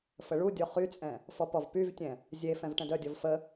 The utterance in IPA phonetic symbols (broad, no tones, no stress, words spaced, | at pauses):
fəɭudʲɔ χyt͡sʼɛ̃ | fɔpɔvpyvtʲɛ̃ | zʲe fɛ̃vʈɛ̃dœdʲɔv fə